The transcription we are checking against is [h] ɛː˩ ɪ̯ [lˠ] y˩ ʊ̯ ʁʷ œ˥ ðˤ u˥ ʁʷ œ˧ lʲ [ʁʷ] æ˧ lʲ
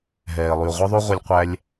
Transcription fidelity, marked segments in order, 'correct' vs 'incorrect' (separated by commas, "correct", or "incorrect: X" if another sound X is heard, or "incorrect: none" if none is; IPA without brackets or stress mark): incorrect: ɦ, correct, incorrect: qʷ